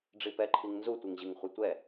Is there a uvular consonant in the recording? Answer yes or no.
yes